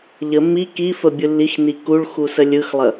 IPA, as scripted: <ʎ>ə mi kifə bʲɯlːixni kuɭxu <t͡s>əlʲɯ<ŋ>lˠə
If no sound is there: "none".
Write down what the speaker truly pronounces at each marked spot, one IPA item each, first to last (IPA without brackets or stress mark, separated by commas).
ʎ, s, x